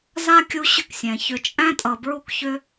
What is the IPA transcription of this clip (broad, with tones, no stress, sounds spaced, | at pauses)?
z a˥ kʲ u˦ ɕ ʏ˦ k sʲ ɛ̃˩ ç ʏ˨ t͡ʃʼ æ̃˦ tʼ ʌ˨ b ɹ u˦ k ç ʏ˦